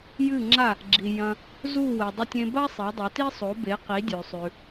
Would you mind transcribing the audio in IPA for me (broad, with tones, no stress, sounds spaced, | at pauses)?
j ɨ˥˩ ŋ͡ǁ a˥˩ | ɡ͡ǁ i˩ j ɐ̃˧ | z u˥˩ w e˩ dˤ ɵ˧ tʲ ẽ˧ b a˥ sˤ e˩˥ dˤ ɵ˩˥ t i˥ sˤ o˩˥ b e˩˥ q i˩˥ dʲ ʉ˩ sˤ ʉ˩